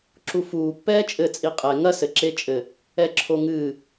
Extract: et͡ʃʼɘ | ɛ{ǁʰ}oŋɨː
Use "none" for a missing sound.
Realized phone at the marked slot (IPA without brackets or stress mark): ǁʰ